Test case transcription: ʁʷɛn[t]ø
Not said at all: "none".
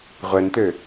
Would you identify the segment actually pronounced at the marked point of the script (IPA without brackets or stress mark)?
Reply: t